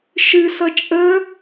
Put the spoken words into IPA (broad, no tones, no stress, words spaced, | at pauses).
ʃɨsʌ t͡ʃʼə